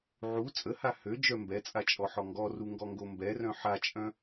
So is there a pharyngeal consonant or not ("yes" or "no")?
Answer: yes